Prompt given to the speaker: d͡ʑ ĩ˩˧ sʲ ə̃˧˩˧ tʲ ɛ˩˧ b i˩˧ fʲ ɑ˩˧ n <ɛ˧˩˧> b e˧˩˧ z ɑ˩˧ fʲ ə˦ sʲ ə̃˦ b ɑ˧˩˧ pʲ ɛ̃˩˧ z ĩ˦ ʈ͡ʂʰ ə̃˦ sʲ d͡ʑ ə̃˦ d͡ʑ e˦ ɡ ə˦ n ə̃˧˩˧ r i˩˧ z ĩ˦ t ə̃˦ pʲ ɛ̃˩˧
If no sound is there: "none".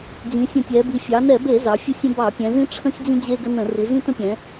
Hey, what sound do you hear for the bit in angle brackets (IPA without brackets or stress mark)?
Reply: ɛ˧˩˧